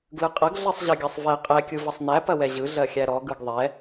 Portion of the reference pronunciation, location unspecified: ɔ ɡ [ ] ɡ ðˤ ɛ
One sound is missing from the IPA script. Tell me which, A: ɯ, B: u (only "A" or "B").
A